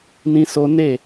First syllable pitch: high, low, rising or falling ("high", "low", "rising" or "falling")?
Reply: high